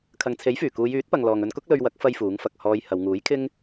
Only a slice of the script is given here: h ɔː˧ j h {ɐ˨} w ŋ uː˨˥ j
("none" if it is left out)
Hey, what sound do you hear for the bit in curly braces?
ɐ˨˧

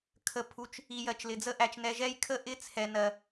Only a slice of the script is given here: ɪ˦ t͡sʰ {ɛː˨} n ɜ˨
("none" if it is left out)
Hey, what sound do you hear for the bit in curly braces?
ɛ˨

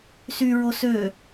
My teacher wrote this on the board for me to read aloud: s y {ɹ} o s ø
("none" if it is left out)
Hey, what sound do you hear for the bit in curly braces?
ɹ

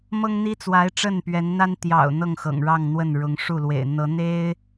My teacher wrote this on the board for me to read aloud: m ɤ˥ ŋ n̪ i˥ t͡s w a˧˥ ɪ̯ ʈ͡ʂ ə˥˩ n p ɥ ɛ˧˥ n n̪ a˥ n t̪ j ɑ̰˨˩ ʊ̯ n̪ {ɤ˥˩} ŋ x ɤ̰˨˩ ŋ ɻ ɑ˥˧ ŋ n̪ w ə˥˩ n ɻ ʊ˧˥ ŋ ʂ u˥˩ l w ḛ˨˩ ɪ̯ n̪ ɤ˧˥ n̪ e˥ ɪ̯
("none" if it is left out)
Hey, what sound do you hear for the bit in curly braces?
ɤ˥˩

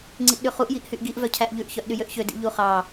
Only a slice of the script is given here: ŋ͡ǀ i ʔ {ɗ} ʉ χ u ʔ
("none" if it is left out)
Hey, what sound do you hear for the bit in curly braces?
ɗ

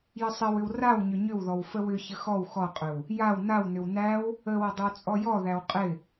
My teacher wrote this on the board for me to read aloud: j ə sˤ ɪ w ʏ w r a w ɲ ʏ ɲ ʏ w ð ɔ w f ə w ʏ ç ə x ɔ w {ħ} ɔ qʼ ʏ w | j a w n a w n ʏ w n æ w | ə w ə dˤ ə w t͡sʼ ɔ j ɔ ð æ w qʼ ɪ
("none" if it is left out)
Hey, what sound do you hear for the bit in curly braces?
x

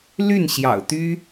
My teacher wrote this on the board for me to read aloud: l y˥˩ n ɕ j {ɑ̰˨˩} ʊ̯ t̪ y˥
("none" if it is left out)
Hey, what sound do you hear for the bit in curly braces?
ɑ̰˨˩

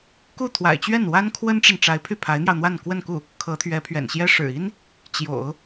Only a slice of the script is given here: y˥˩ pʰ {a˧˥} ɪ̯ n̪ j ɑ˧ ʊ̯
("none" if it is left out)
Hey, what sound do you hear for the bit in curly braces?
a˧˥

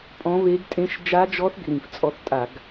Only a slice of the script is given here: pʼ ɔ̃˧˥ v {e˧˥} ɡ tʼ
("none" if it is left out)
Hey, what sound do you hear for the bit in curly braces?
e˧˥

